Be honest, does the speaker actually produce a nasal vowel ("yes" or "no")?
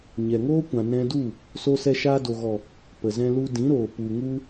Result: yes